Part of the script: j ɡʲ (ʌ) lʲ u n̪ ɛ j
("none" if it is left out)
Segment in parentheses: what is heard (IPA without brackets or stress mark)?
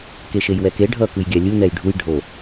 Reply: a